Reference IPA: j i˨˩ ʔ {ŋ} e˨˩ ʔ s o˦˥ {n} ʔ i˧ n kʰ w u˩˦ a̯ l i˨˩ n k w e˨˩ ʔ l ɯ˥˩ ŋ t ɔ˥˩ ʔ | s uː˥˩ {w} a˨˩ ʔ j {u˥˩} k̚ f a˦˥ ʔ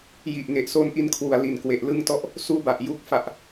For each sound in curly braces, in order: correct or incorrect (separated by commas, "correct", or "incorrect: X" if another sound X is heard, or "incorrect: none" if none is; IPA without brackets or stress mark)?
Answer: correct, correct, incorrect: b, correct